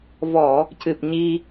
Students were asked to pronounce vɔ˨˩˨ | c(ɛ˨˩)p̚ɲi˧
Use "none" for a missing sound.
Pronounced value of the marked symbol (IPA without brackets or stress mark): ɨ˨˩